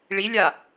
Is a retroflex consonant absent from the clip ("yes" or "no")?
no